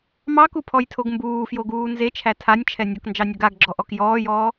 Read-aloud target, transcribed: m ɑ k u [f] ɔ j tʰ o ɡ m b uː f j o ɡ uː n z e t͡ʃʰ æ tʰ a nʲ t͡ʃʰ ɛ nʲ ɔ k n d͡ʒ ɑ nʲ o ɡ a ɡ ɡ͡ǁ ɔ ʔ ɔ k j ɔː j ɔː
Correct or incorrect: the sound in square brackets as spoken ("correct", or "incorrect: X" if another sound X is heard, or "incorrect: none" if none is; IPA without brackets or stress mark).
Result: incorrect: pʰ